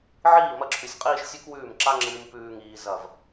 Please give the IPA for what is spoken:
ʕ iː˦˨ m ɐ˧ ǁʰ ʉ˨ sʲ qʼ iː˦ ʃ sʲ ʉ˦ k w ʉː˦˨ m ǁ a˦ ŋ͡ǁ ɨː˧ m p ʉː˦ ŋ iː˧ z ɐ˦˨ v

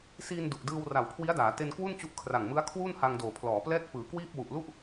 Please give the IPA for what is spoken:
s iː˧ n d u˨˩ ʔ d ɯː˧ w r a˨˩ w kʰ w i˦˥ a̯ d aː˩˦ t e˧ n k w u˥˩ n t͡ɕ u˦˥ ʔ kʰ r a˨˩ ŋ m ɯ˦˥ a̯ kʰ w uː˥˩ n h a˧ ŋ d oː˨˩ pʰ l ɔː˩˦ p l ɛː˥˩ k̚ p ɯː˩˦ k w iː˥˩ p̚ w u˨˩ ʔ l u˥˩ ʔ

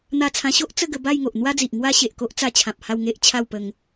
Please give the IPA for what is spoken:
n̪ a˧ t͡sʰ ã˧ ɕ o˦ ʔ t͡s ə˥˧ ɡ ə˧ b a˥˧ j ŋ o˨ ʔ n̪ w a˦ d͡z i˨ ʔ ŋ w a˦ ɕ e˨ ʔ k o˦ ʔ t͡s a˧ t͡ɕʰ ã˨ p̚ h a˥˧ w ŋ e˦ ʔ t͡ɕʰ a˥˧ w p ə˧ ŋ

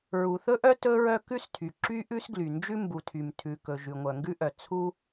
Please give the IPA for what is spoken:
ɹ u˩ θ ɵ˥ ʔ œ˥ t ɵ˥ ɹ œ˥ k ʉ˥ s tʰ y˩ ǁ y˥ ʔ ʉ˥ s ɡ l y˩ n d͡ʒ ʉ˥ m b u˩ tʰ y˩ m tʰ ʉ˩ k ɵ˩ ʒ ʉ˩ ŋʷ œ˩ ŋ ɡ ʉ˥ ʔ œ˩ t͡sʰ u˥

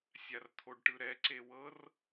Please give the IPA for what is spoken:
sʲ a r t̪ʰ o ɖ ʈ ɯ ɾ ɛ ǀ e w ɤ r

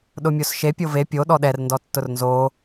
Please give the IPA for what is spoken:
ɗ ʊ mʲ o s ʃ e pʲ o v e pʲ o ɗ ɔ ɗ ɛ r n d ɔ tː ʊ r n z o

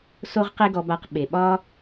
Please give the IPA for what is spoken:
s o˦ ʁ q e˦ ɡ ɔ˧ b a˧ q ɓ e˨ ɓ ɒ˦

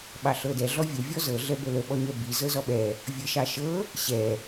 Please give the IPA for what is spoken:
ɓ ɑ ɬ ɤ d ɛ ɮ ɔ vʲ ə vʲ ɔ z ɤ ɮ ɛ b ə l ə ɓ ɔ ɲ ɛ b i z ɤ z ɔ ɓ ɛ | vʲ ɤ ʃ ɑ ʃ ɤ | ɕ ɛ

